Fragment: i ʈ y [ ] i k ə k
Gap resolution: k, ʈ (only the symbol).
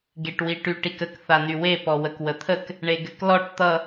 ʈ